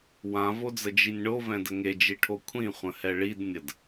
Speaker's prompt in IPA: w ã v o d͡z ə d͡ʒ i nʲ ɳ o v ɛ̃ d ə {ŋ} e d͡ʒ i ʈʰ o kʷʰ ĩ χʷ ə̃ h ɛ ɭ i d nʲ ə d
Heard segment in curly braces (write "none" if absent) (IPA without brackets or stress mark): ŋ